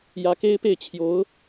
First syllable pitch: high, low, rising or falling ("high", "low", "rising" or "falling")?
rising